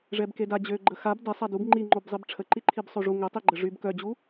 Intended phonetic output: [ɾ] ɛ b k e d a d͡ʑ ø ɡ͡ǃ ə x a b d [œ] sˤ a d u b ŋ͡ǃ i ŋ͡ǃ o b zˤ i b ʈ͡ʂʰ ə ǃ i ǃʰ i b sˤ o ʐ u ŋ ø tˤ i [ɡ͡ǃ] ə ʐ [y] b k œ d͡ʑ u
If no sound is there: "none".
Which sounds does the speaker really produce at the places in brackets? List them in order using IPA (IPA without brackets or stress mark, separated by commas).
ʐ, ɛ, ɡ͡ǃ, y